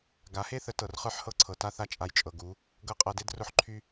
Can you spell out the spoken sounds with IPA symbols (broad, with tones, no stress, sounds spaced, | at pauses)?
ɡ a˨˦ h e˦ θ ə˨˦ t ɤ˨ r χ ə˞˦ ħ h ɤ˦ ǀʰ ɤ˨ t a˦ θ a˦ t͡ʃʼ a˧ j t͡ʃʼ ɤ˨ ɡ u˨˦ | ɡ ɤ˦˨ qʼ ɤ˧ d e˦ d r ʊ˦ ħ ǃʰ y˦